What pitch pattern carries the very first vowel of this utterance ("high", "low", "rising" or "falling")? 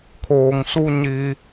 low